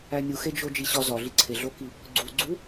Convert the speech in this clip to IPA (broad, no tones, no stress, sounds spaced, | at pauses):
æ nʲ u x e d͡ʒ o d͡ʒ i ɕ ɒ z ɒ ɮ i ǀʰ e ɮ o k i | ɡ͡ǀ u ɡ͡ǀ u